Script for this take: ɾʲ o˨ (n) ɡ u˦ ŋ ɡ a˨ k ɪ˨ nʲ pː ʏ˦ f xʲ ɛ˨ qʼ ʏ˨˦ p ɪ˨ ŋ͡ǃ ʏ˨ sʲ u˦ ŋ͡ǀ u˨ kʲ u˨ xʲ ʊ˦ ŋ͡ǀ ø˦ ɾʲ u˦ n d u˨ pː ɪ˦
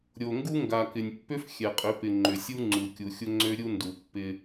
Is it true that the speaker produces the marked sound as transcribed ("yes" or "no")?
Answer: no